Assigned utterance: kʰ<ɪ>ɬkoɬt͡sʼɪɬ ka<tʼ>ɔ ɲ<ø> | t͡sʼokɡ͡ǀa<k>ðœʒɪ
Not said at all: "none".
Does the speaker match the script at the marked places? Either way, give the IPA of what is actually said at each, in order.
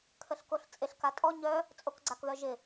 ə, tʼ, œ, k

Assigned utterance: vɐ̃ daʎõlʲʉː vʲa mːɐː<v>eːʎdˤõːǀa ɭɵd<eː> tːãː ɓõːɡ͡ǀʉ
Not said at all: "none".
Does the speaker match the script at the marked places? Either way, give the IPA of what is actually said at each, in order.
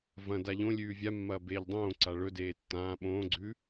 b, eː

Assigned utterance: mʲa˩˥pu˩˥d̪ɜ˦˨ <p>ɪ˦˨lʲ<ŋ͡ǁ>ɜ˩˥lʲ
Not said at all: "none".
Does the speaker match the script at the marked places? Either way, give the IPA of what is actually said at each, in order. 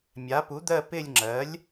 p, ŋ͡ǁ

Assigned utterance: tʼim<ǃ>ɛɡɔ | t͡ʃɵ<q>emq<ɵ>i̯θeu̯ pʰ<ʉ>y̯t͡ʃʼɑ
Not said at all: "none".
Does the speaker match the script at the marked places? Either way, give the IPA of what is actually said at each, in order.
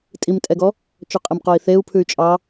tʼ, qʼ, o, ʉ

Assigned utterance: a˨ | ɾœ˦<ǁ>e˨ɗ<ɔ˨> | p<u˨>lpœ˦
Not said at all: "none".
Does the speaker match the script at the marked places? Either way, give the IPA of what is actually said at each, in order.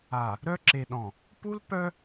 ǁ, ɔ̃˨, u˦

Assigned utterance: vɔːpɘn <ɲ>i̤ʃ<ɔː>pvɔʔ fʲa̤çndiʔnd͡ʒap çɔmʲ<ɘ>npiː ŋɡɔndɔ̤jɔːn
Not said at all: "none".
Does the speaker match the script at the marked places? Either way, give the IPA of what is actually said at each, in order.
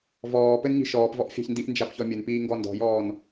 ɲ, ɔː, ɘ

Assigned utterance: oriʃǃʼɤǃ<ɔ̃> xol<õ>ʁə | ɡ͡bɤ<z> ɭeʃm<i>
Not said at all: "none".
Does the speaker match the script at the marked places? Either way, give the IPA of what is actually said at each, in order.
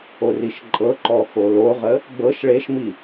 ɔ, o, ʃ, i

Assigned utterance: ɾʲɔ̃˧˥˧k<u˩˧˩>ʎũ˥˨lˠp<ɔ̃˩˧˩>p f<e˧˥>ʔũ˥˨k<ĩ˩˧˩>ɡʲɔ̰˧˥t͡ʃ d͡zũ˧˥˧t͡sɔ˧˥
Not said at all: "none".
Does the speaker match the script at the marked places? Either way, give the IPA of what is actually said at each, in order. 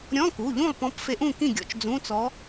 u˩˧˩, ɔ̃˧˥, e˧˥, ĩ˥˨

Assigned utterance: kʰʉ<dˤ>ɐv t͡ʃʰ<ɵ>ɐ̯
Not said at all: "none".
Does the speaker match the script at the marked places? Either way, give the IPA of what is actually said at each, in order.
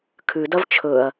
d, ɵ

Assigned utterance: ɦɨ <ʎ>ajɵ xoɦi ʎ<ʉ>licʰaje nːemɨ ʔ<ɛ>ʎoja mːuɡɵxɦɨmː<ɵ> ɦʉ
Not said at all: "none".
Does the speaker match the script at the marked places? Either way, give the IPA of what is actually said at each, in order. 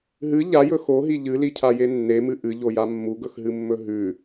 ʎ, ɨ, ɨ, ɵ

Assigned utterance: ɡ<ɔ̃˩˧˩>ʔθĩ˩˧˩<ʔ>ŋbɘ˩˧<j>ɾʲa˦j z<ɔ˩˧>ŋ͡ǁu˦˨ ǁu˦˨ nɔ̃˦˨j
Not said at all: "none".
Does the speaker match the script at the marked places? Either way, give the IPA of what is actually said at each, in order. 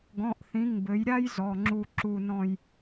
ɔ̃˩˧˩, none, j, ɔ˩˧˩

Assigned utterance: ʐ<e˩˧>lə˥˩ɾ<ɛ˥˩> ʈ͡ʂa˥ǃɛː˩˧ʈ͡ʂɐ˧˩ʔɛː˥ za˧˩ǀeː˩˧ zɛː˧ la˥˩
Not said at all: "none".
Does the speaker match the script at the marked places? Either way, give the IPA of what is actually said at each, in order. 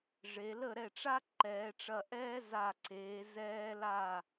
e˩˧, ɛ˥˩

